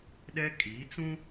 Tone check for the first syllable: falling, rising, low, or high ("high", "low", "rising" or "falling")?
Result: high